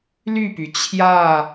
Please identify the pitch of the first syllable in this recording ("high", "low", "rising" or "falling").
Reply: falling